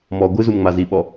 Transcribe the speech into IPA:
m ɔ ɡʷ ɨ z u m ŋ͡m a z i ɓ ɔ

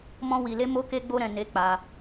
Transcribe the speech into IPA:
m ɔ̃˦ w i˧ l e˦ m o˦ k e˦ ɡ͡b o˦ ɾ ɛ̃˧ n e˧ k͡p a˧

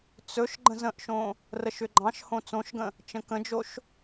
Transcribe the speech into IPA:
t͡s ɵ ʃ ɡ͡ǃ ə̃ z ə̃ ʔ ʃ õ | r ə ʃ ʏ ɡ͡ǃ ɑ̃ ʃ h õ t͡s õ ʃ ɡ ə̃ | t͡ʃ ə̃ k ə̃ d͡ʒ o ʃ

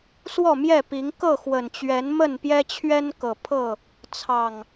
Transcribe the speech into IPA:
s w ɔ˥˨ m j ɛ˥˨ p i˨˦ ŋ k ɤ˥˨ x w ə˨˩ n t͡ɕ ɥ ɛ˨˦ n m ə˥˨ n p j ɛ˦ t͡ɕʰ ɥ ɛ˦ n k ɤ˨˩ pʰ ɤ˥˨ | t͡sʰ ɑ˨˩ ŋ

